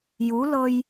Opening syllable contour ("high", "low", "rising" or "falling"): rising